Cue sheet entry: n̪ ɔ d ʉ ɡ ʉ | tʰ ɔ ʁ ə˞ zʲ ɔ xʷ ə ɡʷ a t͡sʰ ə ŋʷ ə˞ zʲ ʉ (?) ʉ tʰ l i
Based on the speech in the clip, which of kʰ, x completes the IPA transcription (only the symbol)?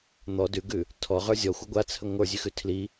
x